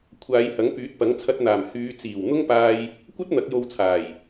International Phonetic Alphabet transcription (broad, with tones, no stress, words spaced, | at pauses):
kʷʰaː˨˧jhɐ˨˥ŋ pyː˨˥t̚pɐ˨˥ŋt͡sʰɐ˧t̚n̪aː˨˩m hyː˨˧t͡siː˨˩w n̪ʊ˥ŋpaː˧j | kʷɐ˥t̚ n̪ɐ˨˥k̚jo˧wt͡sʰaː˨˩j